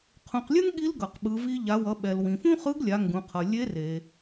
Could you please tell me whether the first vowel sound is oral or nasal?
nasal